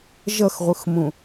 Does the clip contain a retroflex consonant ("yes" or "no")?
no